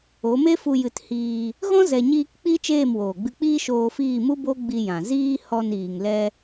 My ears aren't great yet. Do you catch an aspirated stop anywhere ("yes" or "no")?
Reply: no